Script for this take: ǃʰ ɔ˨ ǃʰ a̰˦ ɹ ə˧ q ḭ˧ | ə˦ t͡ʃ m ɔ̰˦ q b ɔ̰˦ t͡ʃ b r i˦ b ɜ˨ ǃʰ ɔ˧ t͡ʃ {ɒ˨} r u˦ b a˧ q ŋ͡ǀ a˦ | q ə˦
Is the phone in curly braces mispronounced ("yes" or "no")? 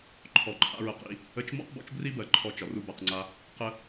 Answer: no